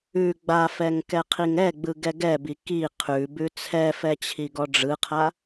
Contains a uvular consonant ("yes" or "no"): yes